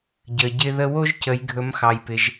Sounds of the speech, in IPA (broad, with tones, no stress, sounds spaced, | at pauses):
ɟ ə˩ ɟ ɪ˧ ð ə˧ w o˥ ʒ c ə˩˧ j ɡʱ ɵ˩˧ m x ɑ˩ j p ɪ˩ ʒ